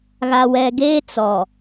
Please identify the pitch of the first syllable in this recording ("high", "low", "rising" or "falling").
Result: low